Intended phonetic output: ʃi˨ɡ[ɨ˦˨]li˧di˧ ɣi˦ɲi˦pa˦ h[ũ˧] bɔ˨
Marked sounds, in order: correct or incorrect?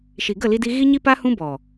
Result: incorrect: ə˦˨, incorrect: ũ˦

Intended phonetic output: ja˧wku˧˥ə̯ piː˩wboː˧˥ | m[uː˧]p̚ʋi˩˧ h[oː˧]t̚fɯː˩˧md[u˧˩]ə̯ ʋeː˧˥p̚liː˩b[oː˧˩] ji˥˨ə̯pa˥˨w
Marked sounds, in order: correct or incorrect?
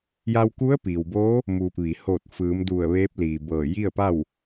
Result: correct, incorrect: oː˧˩, correct, incorrect: ɤː˧˩

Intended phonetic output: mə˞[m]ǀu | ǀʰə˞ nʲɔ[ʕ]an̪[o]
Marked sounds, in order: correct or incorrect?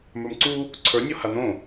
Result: correct, incorrect: h, incorrect: õ

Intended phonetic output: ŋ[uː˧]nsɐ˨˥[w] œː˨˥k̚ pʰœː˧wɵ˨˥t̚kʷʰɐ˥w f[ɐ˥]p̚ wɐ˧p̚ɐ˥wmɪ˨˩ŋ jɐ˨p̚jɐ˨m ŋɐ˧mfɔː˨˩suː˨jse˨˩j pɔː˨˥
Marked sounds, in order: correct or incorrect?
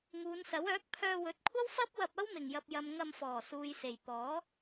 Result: incorrect: uː˨˧, correct, correct

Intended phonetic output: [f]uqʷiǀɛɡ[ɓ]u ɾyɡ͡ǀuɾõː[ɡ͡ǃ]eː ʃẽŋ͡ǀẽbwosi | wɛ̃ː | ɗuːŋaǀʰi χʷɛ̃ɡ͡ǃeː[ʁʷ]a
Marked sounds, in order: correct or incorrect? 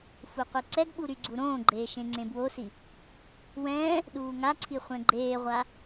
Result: correct, correct, correct, correct

